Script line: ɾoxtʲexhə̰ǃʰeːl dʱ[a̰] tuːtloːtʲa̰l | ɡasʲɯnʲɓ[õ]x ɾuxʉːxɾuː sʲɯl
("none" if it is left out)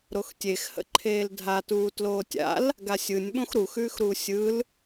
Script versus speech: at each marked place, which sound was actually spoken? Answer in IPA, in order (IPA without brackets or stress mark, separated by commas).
a, õ